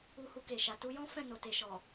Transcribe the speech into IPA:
u˧ h u˧ k e˨ ʃ a˨ t u˧ j ɔ̃˦ f ɛ̃˦˨ n o˨ t e˨ ʃ ɔ˨

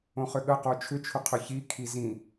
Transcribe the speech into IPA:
õ χ ʏ ɠ ə q o t͡ʃʰ ʏ t͡ʃʰ ʏ qʰ ʏ ç i kʰ i z ĩ

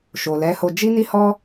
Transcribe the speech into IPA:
ʃ o˨ l ɛ˨˦ h o˧ d͡ʒ i˦ n i˦ h ɔ˦

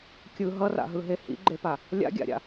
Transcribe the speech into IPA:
kʲ ɯ ɦ ʌ r a̰ ɦ ɯ ɦ e h ḭ ɡ͡ǃ e p a | lʲ a̰ ɡʲ a̰ ɾʲ a̰

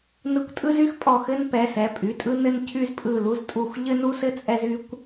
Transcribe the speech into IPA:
n ɯ˧˩ kʷ tʼ ɯ˦ z y˦ x pʼ ɔ˧˩ x ɘ˦ n p ɛ˩˧˩ s ɛ˩˧˩ pʼ y˩˧˩ tʼ ɯ˦ n ɘ˦ n cʰ y˦ z pʼ ɯ˧˩ l u˦ z tʼ u˧˩ xʷ ʎ ɘ˦ n u˦ s ɘ˦ t͡sʼ ɛ˦ z y˦ kʷ

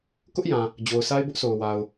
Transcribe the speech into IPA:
k ʊ˦ ʔ j ã˨ | d͡ʑ o˨ ʊ̯ s a˦ ɪ̯ b ʊ˦ ʔ sʰ o˨ ʊ̯ w a˨ ʊ̯

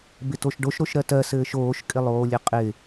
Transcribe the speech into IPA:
b ɪ t o ʃ ɖ o ʃ ɾ o ʃ ɾ ɜ t ɜ s ɘː ʃ oː ʃ kʼ ɪ lˠ oː lʲ ɘ qʼ ɪ

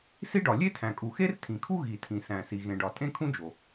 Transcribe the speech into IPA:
s i˥ ɖ ɒ˩ lʲ e˥ tʰ æ̃˩ kʼ u˩ x e˥ r tʰ ĩ˩ kʰ u˥ ɣ i˩ tʰ ĩ˩ s æ̃˩ s i˩ ɣ ẽ˩ ɖ ɒ˩ tʼ ẽ˥ kʰ ũ˥ d͡ʒ o˩

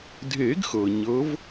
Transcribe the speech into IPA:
dʱ e˨˩˦ ɡ x ɤ˩ ɲ ɤ˨˦ v

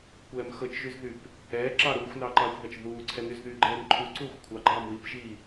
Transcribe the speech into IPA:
kʷ ɛː m x ɤ t͡ʃ ʒ y z ð y p | ɛː ǁ ɑ ɾ uː xʷ n ɑ ǃ ɑː xʷ ð ɑ t͡ʃ ð uː ǀʰ ɛ n y z ð y ɡ͡ǃ ɛː n ǃʰ u ǀ uː xʷ kʷʰ ɑ ɡ͡ǃ ɑː m w i p ʒ i

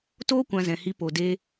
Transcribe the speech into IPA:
t oː˦ kʷ ã˧ z ɛ̃˨ h i˧ p o˨ d eː˧

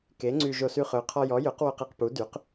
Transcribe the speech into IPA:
k e˨˥ ŋ͡ǀ y˧ ʒ o˧ s y˧ χ ø˨˥ qʰ ɔ˧ j ɔ˨˥ j ø˨˥ q w o˧ q ɛ˧ q p u˨˥ d y˨˥ q

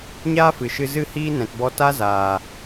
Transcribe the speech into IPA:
ɲ aː˦ f ɨ˨ ʃ ɨ˧ z ɨ˦ h iː˦ n ɛ̃˨ t b ɔ˧ t a˦ z aː˨

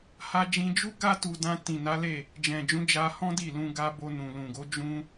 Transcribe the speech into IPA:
h a˧ d͡ʒ ĩ˧ d͡ʒ u˦ ɡ a˧ t u˨ d ã˧ t ĩ˨ n a˨˦ l e˦˨ | d͡ʒ ɛ̃˨ d͡ʒ ũ˨˦ d͡ʒ a˧ h ɔ̃˦ d i˦˨ l ũ˧ ɡ a˧ b o˧ n ũ˨ l ũ˨ ɡ o˨˦ d͡ʒ ũ˦

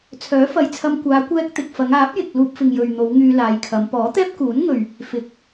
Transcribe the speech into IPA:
t͡sʰ œː˨˥ f ɐ˨ j t͡sʰ ɐ˧ m kʷ aː˨˧ kʷ ɛː˧ k̚ t̪ ɪ˨ k̚ f ɐ˨˧ ŋ aː˨˥ p̚ j ɪ˨ k̚ l uː˧ p̚ f ɪ˨ ŋ j ɵ˨ ɥ n̪ o˨˧ w ŋ yː˧ l aː˨˧ j kʰ ɐ˨˧ m p ɔː˨˥ t̪ ɛː˥ p̚ k uː˨˥ n ŋ ɵ˨ ɥ | f ɪ˨˥ k̚

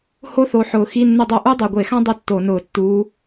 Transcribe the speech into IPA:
h o˥ θ o˨˦ ħ ʊː˨˩ x i˧˥˧ nː ʊ˥˧ dˤ o˥˧ ʔ u˥ dˤ o˨˩ ɡʷ e˧˩˧ x ã˥ dˤ ɪ˥ tː o˧˩˧ n ʊː˧˩˧ tː uː˨˦

